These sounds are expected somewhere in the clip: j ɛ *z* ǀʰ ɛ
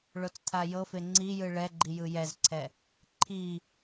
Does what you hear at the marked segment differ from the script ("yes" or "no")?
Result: no